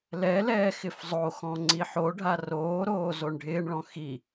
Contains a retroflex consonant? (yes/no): yes